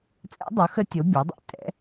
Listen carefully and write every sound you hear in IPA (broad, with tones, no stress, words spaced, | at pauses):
t͡sʼɛ̰˧˥dˤu˩˥xə˧˥ tʲo˩˥ bʲo˩˥dˤḭ˧˥ tʼɛ̰˩˥